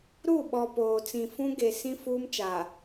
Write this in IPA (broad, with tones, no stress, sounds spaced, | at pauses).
ɾ u˦˨ ɓ ɔ˨ p oː˨ t͡s ĩ˨ f ũ˦ ɡ e˨ s ĩ˦ f uː˦ m t͡ʃ a˨